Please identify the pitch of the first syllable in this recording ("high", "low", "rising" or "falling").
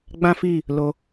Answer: high